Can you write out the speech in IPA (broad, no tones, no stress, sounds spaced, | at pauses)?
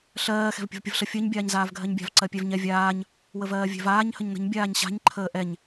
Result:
ɬ ɜː x ɛ̤ v pʲ ə̤ v pʲ ə v ɬ ə fʲ ɜ ɲ bʲ aː ɲ z aː v ɡʱ ɜ ɲ bʲ a̤ v ǀ ɜ pʲ ɛ v ɲ ɛ vʲ aː ɲ | w ə v ɜː vʲ ɛ̤ v aː ɲ h ə ɲ n ə̤ ɲ bʲ aː ɲ ɕ a̤ ɲ ǃʰ əː ʔ ɛ ɲ